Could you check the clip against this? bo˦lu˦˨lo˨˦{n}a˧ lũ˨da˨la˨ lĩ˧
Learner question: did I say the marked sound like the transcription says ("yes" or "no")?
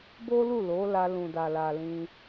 no